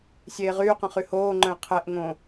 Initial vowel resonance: oral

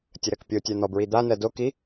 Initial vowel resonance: oral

